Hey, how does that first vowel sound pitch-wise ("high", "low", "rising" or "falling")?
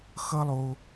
high